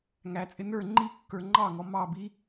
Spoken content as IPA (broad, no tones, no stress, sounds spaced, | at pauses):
ŋ æ t͡sʼ ɪ n ə˞ ŋ͡ǃ i kː ə˞ ŋ͡ǃ ɑ ŋ ɔ m ɑ b i